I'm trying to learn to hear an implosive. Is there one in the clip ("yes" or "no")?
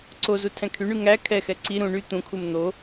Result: no